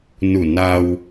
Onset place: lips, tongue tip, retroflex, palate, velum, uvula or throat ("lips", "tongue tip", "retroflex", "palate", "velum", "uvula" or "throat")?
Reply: tongue tip